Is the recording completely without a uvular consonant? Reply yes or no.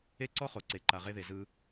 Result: no